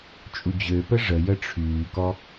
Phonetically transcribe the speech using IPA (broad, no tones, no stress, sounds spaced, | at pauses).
t͡ʃʼ u d͡ʑ ø p ə ʐ ə j ə ʈ͡ʂʰ yː k ɔ